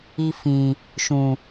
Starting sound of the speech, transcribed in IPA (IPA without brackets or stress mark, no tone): i